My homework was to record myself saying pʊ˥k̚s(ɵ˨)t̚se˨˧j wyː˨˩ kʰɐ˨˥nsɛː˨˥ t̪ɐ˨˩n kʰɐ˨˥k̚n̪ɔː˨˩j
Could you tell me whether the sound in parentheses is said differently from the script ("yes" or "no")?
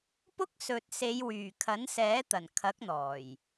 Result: no